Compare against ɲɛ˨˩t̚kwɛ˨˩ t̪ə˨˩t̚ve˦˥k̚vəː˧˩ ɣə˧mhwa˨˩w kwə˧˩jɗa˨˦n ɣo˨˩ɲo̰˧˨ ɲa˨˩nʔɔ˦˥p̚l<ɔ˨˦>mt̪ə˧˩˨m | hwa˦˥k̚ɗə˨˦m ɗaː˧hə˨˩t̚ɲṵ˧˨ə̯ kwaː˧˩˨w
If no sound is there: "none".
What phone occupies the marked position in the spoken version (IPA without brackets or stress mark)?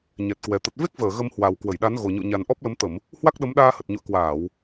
ə˨˦